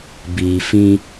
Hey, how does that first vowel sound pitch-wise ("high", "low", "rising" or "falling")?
low